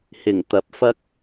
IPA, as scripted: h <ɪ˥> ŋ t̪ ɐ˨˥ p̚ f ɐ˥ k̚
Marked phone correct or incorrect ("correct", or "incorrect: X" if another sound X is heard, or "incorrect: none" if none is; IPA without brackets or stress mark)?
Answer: incorrect: ɪ˨˩